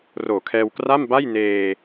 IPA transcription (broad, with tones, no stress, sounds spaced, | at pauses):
r oː˨˩ kʰ ɛː˧ w k r a˥˩ m b a˥˩ j n eː˧